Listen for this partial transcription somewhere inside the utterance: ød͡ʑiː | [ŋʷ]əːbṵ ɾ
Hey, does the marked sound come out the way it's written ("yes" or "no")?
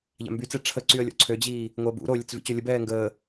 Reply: yes